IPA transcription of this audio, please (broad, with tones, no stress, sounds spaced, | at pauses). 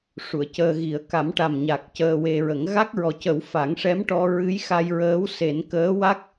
ʂ u˨˩˨ ə̯ c əː˧ ɣ i˨˩˦ ə̯ k a˨˩˦ m ʈ a˨˩ m ɲ a˨˩ k̚ c əː˧ w e˧ ɹ ə˨˩˦ ŋ ɣ a˦˥ k̚ ɹ ɔ˨˩ c ə˨˩˦ w f a˨˩˦ ŋ ʂ ɛ˧˥ m ʈ ɔ˧ ɹ ɨ˧˥ j x a˧ j ɹ əː˧˥ w s e˨˩˦ n k əː˧˥ w a˦˥ k̚